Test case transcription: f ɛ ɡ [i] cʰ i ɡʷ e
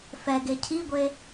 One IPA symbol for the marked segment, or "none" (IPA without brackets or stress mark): e